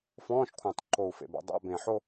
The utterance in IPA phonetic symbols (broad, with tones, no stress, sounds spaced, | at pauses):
f ɔ̃ː˧˥˧ ʃ kʷʰ ã˨˩ tˤ ǃ o˨˩ u̯ f ḛ˨˩ b a̰˨˦ dˤ a̰˧˥˧ b ẽ˨˩ ħ o˥˧